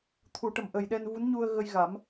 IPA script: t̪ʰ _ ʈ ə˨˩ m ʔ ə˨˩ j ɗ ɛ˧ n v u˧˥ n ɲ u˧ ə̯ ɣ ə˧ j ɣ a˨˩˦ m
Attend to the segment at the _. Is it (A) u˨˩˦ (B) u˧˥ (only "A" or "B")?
A